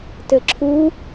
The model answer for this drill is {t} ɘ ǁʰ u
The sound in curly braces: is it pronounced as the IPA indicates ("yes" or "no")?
yes